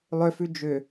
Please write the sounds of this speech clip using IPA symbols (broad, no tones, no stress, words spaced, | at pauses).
lˠʏfʉ d͡ʒʏ